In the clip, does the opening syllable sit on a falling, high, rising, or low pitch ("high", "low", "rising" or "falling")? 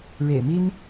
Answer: low